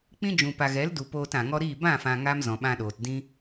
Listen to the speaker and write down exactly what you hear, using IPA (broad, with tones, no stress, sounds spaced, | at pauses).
k͡p ĩ˦ d͡ʒ ũ˨ p a˨ ɣ ɛ˨˦ l d u˨ p oː˧ t ã˨ ŋ ɔ˦ ɾ iː˦˨ b ã˦˨ f ã˨ ŋ a˦ m z ɔ̃˨ ɓ ã˧ ɗ oː˨ t d ĩ˦